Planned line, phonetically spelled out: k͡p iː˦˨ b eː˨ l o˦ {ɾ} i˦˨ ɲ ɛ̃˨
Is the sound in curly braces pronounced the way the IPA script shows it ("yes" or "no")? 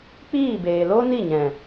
no